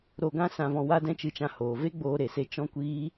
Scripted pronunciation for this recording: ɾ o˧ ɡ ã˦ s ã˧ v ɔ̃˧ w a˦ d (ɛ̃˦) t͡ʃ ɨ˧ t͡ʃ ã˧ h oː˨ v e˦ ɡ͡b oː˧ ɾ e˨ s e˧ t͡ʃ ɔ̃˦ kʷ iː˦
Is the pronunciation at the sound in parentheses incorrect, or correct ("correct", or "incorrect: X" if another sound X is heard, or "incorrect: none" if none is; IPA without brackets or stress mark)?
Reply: correct